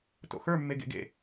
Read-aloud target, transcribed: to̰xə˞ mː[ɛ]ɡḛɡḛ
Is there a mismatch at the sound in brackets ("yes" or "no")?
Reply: yes